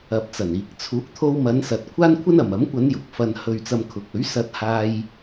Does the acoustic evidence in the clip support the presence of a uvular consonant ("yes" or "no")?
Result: no